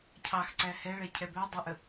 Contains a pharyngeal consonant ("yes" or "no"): no